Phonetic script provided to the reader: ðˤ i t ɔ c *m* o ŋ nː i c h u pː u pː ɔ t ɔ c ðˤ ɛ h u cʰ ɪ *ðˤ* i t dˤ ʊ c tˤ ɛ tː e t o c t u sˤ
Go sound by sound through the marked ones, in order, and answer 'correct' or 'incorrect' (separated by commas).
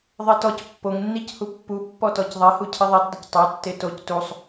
incorrect, correct